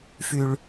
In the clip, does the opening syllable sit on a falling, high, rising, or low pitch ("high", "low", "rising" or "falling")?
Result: low